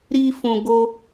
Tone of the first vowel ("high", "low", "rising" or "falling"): high